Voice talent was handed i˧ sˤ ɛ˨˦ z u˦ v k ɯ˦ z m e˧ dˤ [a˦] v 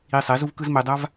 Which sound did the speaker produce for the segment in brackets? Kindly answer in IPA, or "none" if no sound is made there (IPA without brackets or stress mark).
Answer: a˦